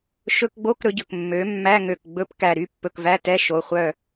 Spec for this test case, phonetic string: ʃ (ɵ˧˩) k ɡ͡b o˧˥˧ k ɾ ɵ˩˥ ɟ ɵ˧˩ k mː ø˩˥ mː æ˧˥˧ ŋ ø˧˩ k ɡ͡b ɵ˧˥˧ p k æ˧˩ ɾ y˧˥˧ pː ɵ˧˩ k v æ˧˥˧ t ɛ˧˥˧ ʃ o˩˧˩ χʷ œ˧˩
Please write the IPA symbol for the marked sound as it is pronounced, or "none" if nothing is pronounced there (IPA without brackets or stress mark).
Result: ɵ˧˥˧